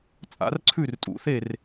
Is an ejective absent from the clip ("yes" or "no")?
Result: no